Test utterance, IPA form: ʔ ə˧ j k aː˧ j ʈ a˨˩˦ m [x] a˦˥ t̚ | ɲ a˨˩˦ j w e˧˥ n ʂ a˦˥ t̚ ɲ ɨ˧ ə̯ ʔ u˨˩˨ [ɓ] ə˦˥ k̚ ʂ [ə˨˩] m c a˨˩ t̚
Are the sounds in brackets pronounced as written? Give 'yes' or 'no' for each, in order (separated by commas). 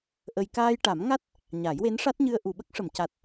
no, yes, no